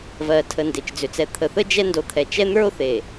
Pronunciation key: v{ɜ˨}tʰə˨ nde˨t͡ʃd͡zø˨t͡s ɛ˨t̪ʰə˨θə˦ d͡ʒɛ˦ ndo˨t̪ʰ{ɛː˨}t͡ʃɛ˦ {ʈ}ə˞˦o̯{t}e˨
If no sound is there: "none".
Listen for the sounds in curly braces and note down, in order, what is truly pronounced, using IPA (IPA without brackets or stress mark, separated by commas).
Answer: ɜ˨, ɛ˨, n̪, θ